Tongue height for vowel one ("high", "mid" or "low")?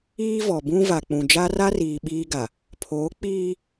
high